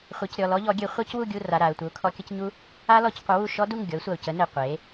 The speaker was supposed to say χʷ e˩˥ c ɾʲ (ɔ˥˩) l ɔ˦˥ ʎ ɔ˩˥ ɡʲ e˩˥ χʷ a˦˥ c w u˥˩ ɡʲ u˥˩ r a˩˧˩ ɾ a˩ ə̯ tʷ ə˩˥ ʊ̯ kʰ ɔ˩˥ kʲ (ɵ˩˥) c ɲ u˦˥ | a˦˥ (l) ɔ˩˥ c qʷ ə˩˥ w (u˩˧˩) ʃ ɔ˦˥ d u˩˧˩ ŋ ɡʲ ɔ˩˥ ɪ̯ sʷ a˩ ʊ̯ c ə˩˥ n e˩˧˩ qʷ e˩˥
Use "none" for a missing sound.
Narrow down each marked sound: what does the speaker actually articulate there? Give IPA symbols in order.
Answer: ɔ˩˧˩, ə˩˥, l, u˥˩

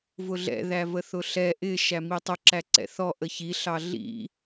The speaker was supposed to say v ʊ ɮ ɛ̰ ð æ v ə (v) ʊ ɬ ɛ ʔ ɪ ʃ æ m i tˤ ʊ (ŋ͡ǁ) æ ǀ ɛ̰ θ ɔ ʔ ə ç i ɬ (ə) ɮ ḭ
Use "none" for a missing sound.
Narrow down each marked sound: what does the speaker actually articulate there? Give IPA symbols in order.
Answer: θ, ǁ, ɑ

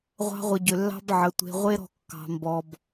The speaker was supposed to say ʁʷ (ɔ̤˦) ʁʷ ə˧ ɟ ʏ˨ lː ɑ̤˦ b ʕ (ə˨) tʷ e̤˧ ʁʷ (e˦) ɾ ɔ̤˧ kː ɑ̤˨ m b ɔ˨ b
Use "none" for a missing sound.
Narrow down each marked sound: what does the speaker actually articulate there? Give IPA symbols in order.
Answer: ɑ̤˦, ə˨, e˦

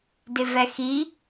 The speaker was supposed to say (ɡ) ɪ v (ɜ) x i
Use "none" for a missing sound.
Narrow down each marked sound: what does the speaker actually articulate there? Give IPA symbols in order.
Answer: d, ɛ

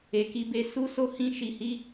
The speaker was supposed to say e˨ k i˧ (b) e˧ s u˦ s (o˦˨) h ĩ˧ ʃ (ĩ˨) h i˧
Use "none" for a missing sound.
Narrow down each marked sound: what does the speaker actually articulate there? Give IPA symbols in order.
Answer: b, o˦˨, i˨

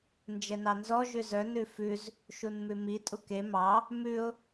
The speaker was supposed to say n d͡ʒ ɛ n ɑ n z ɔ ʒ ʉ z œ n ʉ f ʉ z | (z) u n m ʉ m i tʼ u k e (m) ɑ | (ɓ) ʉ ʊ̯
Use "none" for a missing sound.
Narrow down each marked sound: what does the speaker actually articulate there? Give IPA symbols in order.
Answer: ʃ, m, m

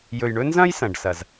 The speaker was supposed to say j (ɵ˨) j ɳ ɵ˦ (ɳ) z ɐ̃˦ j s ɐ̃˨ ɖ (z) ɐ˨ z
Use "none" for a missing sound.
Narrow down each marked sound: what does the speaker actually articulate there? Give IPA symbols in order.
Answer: ɵ˨, n, s

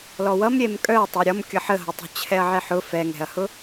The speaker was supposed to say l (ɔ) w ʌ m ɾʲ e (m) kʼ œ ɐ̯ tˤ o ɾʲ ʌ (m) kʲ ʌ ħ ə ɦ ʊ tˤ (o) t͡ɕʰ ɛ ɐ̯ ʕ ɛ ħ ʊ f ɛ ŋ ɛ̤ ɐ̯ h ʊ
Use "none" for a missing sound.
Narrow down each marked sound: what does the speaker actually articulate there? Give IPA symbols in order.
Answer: ɔ, m, m, o̤

